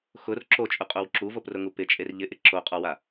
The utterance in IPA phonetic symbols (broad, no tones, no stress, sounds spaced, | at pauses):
x ʊ r ǁ o t͡ʃʼ ʊ qʼ o w ǁ u v o p r ʊ ŋ u p ɪ t͡ʃʼ e r ʎ ɪ ʔ ɪ ǁ o qʼ ɔ w a